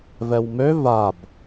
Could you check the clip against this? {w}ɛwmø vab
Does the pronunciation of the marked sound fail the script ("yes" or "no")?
yes